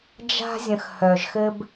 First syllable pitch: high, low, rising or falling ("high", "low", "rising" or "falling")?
high